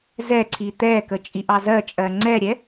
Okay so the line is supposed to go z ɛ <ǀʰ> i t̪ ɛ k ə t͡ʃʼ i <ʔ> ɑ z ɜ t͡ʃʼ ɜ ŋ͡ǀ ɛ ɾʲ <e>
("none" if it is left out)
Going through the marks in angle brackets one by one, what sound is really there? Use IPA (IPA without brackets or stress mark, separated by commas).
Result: ǀʰ, ʔ, ɛ